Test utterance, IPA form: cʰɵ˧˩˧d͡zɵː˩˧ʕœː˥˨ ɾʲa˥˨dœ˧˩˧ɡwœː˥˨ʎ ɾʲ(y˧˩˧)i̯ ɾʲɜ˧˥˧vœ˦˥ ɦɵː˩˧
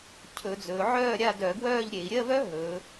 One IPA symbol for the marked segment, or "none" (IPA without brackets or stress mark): e˧˩˧